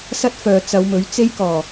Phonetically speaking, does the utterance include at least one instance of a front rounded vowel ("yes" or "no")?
yes